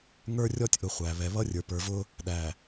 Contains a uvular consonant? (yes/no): yes